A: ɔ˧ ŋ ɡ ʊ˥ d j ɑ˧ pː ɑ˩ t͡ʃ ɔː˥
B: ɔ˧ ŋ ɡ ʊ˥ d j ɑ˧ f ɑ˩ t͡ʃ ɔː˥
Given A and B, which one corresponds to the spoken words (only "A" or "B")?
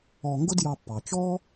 A